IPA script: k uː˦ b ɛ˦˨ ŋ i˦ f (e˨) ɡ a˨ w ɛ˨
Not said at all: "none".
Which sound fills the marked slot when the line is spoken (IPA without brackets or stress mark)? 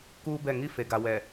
e˨